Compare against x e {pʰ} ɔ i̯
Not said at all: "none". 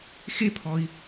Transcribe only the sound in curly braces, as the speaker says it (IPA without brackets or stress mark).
pʰ